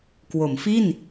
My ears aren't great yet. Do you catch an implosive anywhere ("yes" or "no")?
no